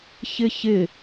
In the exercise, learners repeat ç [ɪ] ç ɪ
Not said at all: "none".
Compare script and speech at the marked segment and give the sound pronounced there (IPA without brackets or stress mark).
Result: ɪ